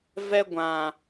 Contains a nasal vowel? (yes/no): yes